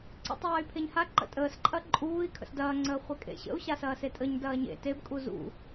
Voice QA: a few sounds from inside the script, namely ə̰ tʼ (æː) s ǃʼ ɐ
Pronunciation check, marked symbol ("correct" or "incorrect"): incorrect